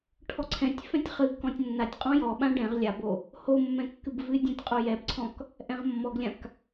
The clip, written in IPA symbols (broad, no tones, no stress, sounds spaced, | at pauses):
ʈʰ ɔ ǀʰ ɛ̃ tʲ f ɛ̃ tʲ χ ɨ ɡ k ɔ̃ tʲ nː a tʲ qʼ ɔ̃ j ɔ ɓ ã ɖ ɛ̃ ʁ lʲ a b o | h o mː ɛ̃ kː ɨ b v ɨ dʲ ã tʲ qʼ o j ɛ b ǀʰ ɔ̃ k | ʔ ɛ̃ ʁ mː ɔ ɡ lʲ ã k